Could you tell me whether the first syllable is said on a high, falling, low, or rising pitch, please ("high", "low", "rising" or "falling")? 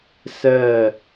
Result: falling